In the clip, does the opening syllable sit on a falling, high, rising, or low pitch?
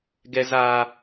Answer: high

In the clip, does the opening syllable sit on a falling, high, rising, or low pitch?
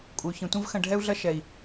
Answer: low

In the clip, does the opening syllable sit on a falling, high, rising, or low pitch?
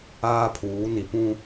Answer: high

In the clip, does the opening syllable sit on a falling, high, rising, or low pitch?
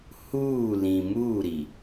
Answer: falling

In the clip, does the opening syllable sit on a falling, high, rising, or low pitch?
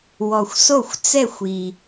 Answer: low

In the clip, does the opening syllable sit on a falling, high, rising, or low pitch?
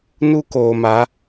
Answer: high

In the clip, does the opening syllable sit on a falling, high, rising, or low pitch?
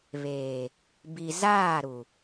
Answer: low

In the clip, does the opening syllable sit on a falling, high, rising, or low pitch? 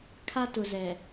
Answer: high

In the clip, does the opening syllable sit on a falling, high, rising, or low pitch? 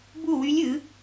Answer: falling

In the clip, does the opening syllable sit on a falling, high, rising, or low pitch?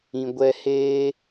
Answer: low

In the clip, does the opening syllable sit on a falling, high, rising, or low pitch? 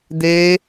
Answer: high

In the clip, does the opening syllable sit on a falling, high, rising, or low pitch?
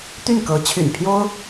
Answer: falling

